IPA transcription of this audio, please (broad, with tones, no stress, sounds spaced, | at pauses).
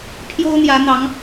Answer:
pʰ j o˦ ʊ̯ n̪ j ä˨˦ n̪ ɑ˨˦ ŋ